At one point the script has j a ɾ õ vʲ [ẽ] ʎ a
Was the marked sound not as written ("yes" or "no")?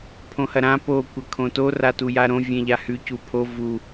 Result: no